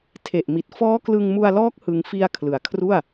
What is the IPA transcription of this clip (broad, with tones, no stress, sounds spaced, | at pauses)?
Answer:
tʰ e˨˩ ʔ m i˨˩ t̚ f ɔː˦˥ k l ɯ˧ ŋ m u˧ a̯ l ɔː˦˥ k̚ h ɯ˧ ŋ f i˧ a̯ kʰ l ɯ˩˦ a̯ kʰ r u˥˩ a̯